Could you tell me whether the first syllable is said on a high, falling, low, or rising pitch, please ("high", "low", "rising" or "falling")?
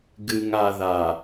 low